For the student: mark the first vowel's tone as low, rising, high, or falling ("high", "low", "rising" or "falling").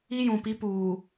high